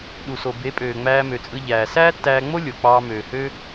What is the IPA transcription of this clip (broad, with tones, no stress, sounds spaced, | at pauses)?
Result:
ɗ u˨ s o˨ b e˨˦ pʼ øː˨ ŋ͡m æː˧ m ø˨ t͡sʼ ɯ˧ ʎ æː˨ s æː˦ tː æː˧ ŋ͡m o˦ lʲ o˨ k͡p ɑː˧ m øː˨ h ø˧